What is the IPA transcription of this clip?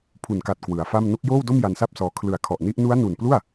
pʰu˨˩nka˨˩t̚ kwɯ˩˦a̯fa˥˩m no˦˥k̚joː˥˩wdo˥˩m ja˧nsa˥˩p̚sɔː˧ kʰlɯ˨˩a̯ kʰɔ˨˩ʔni˦˥ʔ nu˦˥a̯nu˨˩nplu˥˩a̯

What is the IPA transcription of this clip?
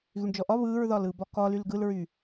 ɣyɳd͡ʒɔʔɒ βɯːɹðɒlɯːb ɒkɒlyl ɡɯlɹy

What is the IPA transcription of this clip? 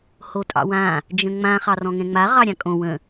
hotʼɑ̰wã | d͡ʒə̃ŋ͡mã χɑrɔ̃ŋɛ̃ŋ͡ma ʁɑɾʲãkʼõ wə̃

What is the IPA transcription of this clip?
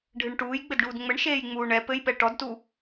ɖʱɨɳʈuːj ɡ͡bɘdɖuːdŋ͡mɘɳ ʃeːjŋ͡muːɳɛ pɘjpɛ ʈɔdtu

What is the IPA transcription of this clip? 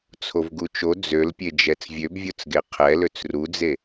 t͡sʰovɡut͡ʃo d͡zølpʲed͡ʒɛt͡s vʲøbvʲot͡sɡe qʰɛløt͡s rud͡ze

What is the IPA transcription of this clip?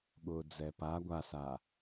ɠʊːd͡zɛpa ɡʷasaː

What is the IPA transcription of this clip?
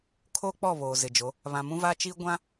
kʰo˦k͡pɔ˦˨ βoː˨zɪ˨d͡ʒo˨˦ | βã˨mũ˦va˦t͡ʃiː˦ ɡʷã˦

